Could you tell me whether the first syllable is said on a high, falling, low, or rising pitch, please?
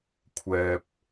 low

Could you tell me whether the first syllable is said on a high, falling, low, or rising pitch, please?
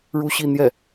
high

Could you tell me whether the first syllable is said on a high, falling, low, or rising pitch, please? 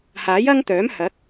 rising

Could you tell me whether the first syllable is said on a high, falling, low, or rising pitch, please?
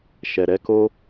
low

